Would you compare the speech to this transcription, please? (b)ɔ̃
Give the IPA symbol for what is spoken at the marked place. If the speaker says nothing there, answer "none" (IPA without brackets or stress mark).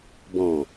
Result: b